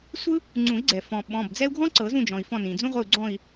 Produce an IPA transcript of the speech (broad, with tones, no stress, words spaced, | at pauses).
sʷɯ˥ | ŋ͡ǀũ˨˩˦i̯ɡ͡ǀɛ˩ fɔ̃˩ ɓɔ̃˩˧˩bd͡zɛ˥u̯ ɡʱɔ̃˥ǀɤ˨˩˦zũ˦˨d͡ʒɔ̃˩i̯ fɔ̃˦˨nĩ˩d͡zũ˥ʁʷɯ˦˨u̯ ɡ͡ǀɔ̃˦˨i̯